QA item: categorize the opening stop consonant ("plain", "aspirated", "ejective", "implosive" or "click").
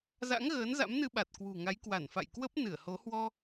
implosive